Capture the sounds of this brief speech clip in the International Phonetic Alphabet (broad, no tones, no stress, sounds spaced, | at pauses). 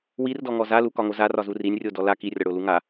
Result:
w i r d ɔ ŋ ɔ z a l u k ɒ ŋ o z a r ɒ z u r i nʲ rʲ o d ɔ l a k i rʲ ɒ ɽ o l u ŋ a